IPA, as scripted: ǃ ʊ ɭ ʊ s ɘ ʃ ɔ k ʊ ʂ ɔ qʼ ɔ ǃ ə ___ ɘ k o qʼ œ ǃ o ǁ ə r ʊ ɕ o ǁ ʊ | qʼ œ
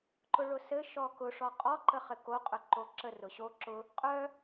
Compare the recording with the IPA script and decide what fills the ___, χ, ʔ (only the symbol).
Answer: χ